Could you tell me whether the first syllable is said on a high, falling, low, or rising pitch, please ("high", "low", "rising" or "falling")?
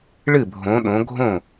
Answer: falling